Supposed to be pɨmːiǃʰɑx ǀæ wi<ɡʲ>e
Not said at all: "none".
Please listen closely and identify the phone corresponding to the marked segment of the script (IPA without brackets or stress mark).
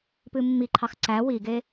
ɡ